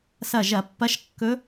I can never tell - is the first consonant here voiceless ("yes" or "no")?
yes